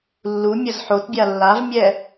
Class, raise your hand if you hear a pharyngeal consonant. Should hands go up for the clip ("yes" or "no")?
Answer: yes